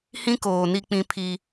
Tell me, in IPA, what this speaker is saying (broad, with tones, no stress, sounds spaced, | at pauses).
h ĩ˦ k oː˨ n i˦ k͡p ĩ˦ pʰ i˦